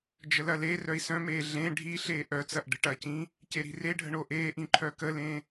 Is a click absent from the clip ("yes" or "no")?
no